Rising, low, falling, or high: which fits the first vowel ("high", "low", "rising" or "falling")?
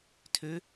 rising